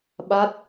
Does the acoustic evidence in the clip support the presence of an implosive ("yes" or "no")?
yes